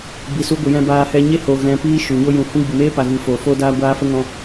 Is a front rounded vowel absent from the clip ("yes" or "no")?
yes